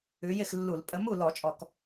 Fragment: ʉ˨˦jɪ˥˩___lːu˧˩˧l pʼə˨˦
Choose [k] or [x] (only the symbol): x